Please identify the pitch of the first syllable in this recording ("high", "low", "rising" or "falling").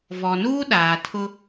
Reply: low